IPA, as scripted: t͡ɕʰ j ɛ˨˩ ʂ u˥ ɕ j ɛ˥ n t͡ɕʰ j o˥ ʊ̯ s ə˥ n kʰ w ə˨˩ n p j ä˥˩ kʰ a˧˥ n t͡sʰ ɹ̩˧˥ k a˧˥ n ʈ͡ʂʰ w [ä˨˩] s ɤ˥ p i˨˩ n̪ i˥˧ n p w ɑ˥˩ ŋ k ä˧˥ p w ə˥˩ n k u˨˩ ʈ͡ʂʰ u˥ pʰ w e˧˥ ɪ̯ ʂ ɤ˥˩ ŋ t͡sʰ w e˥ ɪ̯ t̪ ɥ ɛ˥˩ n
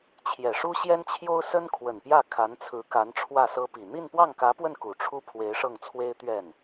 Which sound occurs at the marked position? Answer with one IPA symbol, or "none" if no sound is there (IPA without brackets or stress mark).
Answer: ä˥˩